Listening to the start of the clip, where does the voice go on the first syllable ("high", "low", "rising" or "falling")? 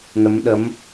rising